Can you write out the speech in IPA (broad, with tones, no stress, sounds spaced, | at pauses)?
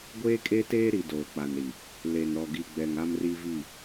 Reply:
ɡʷ eː˦ kʼ e˦ t eː˦ ɾ i˨ d oː˨ k͡p a˨ n ɾ i˨ | l e˨ n ɾ ɔ˨ ɡ i˨ ɡ͡b ɛ˨ ŋ a˦ m r i˦ v i˦˨